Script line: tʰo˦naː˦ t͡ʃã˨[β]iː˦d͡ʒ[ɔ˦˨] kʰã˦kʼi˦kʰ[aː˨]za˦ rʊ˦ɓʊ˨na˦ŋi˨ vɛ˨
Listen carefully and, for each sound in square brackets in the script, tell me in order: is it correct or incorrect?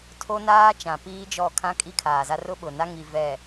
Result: incorrect: p, correct, correct

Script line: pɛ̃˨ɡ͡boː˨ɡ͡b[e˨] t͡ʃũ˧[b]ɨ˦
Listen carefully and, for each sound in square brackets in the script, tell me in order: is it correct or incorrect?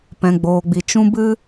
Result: incorrect: i˨, correct

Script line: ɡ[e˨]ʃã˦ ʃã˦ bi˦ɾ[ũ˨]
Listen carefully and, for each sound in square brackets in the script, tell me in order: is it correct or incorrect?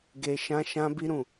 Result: incorrect: e˧, incorrect: ũ˦˨

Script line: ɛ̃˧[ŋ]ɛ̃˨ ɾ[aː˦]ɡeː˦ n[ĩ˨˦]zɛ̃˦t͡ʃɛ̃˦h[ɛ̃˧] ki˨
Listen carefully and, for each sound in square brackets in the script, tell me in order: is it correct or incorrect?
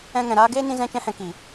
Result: correct, correct, incorrect: ĩ˦, correct

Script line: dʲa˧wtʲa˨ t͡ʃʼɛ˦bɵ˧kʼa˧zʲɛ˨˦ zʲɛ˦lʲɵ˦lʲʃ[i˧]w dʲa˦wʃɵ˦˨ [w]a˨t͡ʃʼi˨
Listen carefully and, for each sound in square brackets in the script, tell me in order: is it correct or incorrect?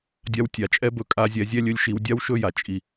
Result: correct, incorrect: j

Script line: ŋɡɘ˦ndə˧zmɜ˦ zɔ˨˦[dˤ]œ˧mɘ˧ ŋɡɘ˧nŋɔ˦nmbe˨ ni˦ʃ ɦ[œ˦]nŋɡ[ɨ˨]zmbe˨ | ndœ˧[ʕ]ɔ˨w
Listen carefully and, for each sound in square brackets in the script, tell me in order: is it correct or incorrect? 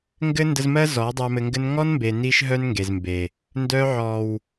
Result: correct, correct, incorrect: e˨, correct

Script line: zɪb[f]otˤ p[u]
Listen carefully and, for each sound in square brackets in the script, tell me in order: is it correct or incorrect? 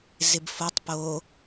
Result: correct, incorrect: o

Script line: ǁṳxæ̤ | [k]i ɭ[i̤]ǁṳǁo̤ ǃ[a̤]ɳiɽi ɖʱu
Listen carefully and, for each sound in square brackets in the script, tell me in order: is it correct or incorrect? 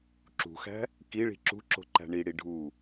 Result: correct, correct, incorrect: æ̤

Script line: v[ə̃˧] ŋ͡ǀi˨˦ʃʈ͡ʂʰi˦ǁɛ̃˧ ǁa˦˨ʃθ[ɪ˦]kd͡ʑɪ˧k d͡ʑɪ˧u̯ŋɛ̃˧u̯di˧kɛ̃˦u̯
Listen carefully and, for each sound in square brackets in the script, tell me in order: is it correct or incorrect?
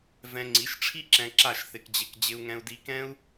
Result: incorrect: ɛ̃˧, incorrect: ɪ˧

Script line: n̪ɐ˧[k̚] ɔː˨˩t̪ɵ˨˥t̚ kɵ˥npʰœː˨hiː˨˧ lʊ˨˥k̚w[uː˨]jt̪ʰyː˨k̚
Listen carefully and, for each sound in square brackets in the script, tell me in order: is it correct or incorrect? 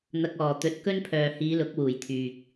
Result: correct, incorrect: uː˨˩

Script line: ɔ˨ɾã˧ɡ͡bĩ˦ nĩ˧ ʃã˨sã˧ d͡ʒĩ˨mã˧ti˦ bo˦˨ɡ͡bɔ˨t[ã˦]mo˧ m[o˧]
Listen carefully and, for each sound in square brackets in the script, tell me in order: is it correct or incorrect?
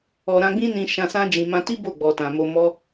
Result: incorrect: ã˨, incorrect: ɔ˧

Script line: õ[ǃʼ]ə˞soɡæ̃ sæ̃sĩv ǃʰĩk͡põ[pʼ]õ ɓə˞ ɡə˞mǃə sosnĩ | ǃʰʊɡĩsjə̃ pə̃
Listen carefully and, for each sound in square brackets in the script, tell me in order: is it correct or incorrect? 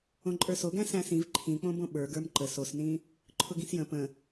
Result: correct, incorrect: b

